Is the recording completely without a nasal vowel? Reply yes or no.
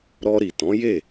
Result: no